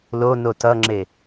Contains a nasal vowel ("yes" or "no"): no